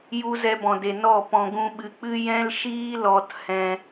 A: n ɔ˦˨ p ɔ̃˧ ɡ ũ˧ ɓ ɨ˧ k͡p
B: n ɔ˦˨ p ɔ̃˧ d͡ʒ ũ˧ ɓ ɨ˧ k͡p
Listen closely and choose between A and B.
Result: A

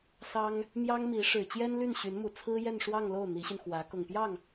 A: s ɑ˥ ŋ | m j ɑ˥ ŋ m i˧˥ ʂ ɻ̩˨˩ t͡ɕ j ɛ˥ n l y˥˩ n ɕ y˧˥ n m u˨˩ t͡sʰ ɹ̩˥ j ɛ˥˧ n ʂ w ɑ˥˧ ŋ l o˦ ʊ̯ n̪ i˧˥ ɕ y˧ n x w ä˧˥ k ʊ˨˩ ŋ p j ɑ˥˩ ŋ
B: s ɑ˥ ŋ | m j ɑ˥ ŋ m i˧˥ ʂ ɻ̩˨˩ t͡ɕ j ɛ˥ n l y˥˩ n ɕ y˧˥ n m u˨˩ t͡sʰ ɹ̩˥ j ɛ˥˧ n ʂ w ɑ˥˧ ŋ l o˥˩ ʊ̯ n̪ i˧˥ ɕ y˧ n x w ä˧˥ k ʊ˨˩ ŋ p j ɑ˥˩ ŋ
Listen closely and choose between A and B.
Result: B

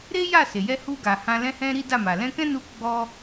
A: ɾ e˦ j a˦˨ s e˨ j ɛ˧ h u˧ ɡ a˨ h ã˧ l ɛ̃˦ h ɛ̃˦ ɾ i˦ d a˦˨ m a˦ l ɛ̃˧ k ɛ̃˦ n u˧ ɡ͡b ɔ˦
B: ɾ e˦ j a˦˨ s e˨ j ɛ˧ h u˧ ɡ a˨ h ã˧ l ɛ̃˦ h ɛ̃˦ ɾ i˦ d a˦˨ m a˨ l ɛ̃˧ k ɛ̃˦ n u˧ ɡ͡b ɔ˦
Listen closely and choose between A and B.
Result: B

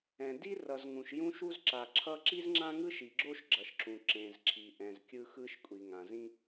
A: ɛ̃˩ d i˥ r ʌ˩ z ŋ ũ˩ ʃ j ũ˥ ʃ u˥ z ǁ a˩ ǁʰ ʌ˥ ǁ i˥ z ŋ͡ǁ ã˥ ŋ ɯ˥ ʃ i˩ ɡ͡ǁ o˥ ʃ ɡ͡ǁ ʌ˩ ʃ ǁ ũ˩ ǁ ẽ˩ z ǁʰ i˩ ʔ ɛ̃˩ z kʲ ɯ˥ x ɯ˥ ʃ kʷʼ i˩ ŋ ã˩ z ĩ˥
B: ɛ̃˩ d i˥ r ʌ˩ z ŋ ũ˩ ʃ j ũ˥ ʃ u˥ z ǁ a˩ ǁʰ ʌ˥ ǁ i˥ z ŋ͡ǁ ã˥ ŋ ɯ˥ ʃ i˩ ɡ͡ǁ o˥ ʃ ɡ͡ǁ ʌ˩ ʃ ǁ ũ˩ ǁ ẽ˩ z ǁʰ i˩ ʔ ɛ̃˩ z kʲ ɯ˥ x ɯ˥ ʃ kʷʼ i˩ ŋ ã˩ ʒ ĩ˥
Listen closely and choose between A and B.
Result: A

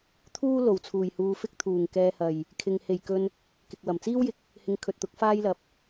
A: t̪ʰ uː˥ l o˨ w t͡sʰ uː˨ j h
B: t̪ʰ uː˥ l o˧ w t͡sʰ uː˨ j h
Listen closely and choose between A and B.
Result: A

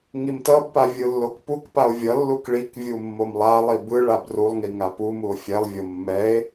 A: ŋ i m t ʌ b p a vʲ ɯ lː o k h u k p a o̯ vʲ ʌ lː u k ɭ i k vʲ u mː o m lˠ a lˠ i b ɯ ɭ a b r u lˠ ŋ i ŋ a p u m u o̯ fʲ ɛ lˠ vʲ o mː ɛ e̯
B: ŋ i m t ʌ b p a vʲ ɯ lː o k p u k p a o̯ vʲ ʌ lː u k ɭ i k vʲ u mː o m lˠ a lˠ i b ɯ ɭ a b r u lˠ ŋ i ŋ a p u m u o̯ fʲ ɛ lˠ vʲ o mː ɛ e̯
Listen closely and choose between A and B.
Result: B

